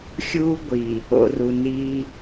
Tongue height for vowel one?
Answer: high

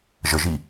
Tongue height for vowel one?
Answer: mid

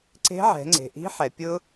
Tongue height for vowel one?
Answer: mid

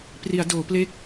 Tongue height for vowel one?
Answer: high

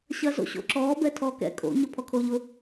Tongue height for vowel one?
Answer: low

